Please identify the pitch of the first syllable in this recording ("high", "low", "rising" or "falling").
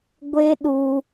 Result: high